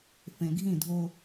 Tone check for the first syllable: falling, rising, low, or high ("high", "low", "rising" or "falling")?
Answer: low